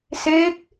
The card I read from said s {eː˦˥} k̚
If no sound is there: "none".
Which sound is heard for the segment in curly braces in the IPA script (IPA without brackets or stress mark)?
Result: eː˦˥